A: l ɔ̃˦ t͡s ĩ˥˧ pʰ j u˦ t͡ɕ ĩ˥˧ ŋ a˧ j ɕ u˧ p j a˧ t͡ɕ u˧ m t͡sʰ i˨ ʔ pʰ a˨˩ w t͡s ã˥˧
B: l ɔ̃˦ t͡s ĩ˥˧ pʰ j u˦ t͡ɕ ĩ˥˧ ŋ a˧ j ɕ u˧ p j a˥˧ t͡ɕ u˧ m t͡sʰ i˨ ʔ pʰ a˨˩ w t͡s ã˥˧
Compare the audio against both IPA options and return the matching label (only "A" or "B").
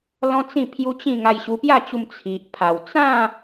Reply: B